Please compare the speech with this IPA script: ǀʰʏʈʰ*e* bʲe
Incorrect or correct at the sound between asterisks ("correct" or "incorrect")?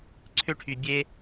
incorrect